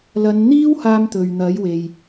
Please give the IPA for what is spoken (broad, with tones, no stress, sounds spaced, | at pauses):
l ɐ˨˧ n n̪ iː˥ w h aː˥ m t̪ ɵ˨ ɥ n̪ ɐ˨˥ j w e˨ j